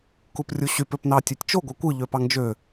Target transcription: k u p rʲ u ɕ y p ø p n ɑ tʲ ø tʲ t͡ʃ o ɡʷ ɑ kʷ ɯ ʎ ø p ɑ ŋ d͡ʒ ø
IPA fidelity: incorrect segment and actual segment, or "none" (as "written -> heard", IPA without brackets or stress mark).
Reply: none